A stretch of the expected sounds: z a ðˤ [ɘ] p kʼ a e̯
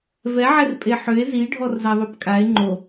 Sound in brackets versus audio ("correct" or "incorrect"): incorrect